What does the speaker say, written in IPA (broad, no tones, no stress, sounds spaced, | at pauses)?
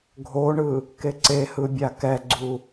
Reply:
ɡʱ o ɳ ɯ | k e ǀ e h ɯ bʲ a k ɛ ɡ͡ǀ u